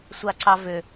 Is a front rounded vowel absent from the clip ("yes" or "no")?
no